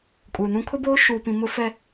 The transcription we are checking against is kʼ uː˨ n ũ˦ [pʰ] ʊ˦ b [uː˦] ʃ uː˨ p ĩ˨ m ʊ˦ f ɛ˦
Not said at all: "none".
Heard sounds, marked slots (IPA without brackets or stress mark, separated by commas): kʰ, oː˦